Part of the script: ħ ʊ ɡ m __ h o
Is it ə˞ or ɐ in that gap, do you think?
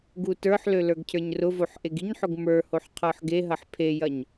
ə˞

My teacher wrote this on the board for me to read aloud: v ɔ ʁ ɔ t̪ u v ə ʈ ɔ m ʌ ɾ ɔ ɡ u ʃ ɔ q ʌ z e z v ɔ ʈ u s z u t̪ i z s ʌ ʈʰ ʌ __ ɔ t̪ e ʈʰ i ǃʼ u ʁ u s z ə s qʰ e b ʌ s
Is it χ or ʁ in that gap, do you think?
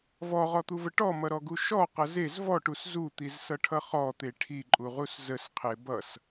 χ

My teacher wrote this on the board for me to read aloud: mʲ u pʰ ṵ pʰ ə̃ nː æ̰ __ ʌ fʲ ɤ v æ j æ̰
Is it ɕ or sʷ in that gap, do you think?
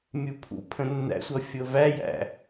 sʷ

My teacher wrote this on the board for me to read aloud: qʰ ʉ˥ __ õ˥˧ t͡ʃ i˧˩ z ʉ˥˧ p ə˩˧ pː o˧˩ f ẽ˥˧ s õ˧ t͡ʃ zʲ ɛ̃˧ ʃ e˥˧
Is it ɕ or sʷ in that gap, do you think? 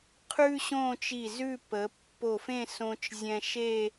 ɕ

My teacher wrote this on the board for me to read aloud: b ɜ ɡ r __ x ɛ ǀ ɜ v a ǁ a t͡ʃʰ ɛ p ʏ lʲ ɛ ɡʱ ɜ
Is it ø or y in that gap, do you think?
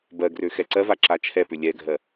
ø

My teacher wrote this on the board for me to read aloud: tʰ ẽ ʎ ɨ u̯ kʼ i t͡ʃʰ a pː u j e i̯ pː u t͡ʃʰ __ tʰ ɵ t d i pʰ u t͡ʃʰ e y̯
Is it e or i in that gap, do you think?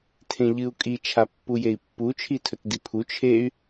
i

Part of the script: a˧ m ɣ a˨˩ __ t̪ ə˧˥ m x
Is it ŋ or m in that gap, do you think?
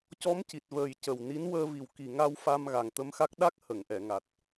ŋ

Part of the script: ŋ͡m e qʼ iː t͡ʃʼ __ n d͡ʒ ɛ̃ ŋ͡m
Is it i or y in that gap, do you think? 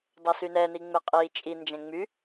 i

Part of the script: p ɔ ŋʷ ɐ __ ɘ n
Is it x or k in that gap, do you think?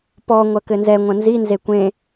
k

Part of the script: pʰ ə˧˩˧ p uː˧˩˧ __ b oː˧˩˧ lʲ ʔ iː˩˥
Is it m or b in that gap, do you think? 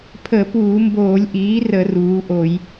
m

